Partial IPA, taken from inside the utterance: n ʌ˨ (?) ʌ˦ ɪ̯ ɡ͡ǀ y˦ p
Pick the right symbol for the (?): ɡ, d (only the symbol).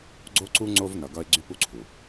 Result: ɡ